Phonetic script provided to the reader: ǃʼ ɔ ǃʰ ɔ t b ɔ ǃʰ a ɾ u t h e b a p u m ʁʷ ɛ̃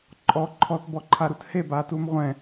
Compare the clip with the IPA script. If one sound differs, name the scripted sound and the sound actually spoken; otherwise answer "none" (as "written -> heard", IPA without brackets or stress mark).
p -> t